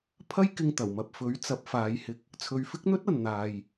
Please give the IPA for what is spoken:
pʰɐ˥jkɪ˧ŋt̪ɐ˨˩wmɐ˨p̚ fɵ˨˥ɥ t͡sɐ˨˥p̚faː˨˧jhɪ˧k̚ | t͡sʰɵ˨ɥfɪ˥k̚n̪ɵ˥t̚ ɐ˨nn̪aː˨j

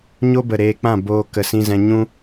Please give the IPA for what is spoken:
ɲo˦bə˨ ɾeː˧k͡pã˦˨boː˧ kə˨sĩ˧zɛ̃˧ ɲũ˦

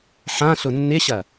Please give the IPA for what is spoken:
ħã ɬʊnːɪɕɐ

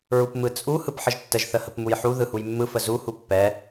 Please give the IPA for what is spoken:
ɹupmɯt͡sʼu hɯpħəʒtːəʒ θəhəpmujħu ðɯhujmːɯ fəzu hupːɛ

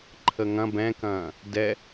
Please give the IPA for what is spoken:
ǃʰəŋɐ̃ bɛ̃kɐ̃ː | dɛ

